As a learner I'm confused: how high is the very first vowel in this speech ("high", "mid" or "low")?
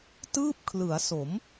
high